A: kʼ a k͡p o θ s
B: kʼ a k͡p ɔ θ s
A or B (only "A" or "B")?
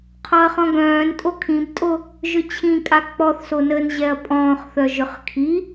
B